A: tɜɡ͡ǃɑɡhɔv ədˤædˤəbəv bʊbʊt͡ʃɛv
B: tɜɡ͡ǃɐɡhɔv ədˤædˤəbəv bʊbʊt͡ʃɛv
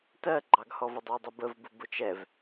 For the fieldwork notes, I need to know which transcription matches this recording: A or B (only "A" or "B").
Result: A